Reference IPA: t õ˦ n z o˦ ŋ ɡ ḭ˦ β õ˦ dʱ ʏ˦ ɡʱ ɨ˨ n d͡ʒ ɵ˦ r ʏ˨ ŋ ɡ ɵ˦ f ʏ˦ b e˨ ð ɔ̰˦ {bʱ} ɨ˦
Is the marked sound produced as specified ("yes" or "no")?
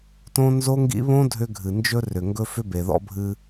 yes